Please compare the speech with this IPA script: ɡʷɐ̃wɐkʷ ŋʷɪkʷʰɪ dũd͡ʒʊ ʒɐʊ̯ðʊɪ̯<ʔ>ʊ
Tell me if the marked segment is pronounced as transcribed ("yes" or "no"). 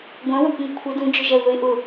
yes